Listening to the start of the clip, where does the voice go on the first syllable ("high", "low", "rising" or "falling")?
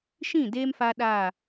falling